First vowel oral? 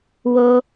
yes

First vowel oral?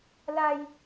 yes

